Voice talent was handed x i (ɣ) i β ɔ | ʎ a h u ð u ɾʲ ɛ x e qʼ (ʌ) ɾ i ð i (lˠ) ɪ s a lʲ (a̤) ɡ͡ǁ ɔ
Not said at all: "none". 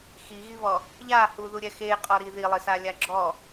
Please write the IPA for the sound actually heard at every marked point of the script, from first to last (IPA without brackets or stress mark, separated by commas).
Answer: ɣ, ɔ, lˠ, a